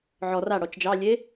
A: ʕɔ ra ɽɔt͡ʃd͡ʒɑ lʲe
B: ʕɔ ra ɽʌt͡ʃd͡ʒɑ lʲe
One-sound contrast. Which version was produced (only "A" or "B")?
A